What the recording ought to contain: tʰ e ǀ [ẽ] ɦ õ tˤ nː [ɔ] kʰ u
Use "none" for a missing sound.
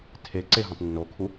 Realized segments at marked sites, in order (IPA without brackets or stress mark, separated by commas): e, o